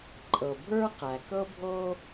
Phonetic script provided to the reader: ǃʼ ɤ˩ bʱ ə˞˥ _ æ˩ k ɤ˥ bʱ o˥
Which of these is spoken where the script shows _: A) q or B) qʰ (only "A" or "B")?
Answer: A